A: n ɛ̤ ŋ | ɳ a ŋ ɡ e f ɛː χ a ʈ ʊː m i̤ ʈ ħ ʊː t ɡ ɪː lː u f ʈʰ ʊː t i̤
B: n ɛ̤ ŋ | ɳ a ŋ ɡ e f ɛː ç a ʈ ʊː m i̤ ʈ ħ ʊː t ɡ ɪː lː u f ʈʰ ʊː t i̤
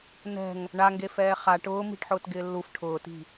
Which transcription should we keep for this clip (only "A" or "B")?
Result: A